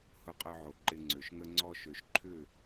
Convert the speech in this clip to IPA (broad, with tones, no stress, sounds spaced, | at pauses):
h ʊ˧ qʼ œ˧ ʕ o˨ ǃ ɪ˧ ŋ͡ǀ ø˨ ʃ ŋ ə˦ ŋ͡ǀ ɔ˦ ʃ ø˨ ʃ ǃʰ ʏ˦˨